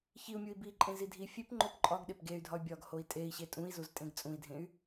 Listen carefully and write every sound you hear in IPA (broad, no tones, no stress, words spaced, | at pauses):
çiu̯mʲui̯ biǃʼẽzi dʱi fʲepŋ͡ǃop ǃʼɒɡɗep ɡey̯dʱɒy̯ bʲɒɡhoi̯ tʼei̯ɕe tʼũi̯zuztʼẽɡ t͡sʼũi̯dʱẽy̯